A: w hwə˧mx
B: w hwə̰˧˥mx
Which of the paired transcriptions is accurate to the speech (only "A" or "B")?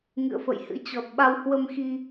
A